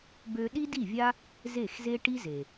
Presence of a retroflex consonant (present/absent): present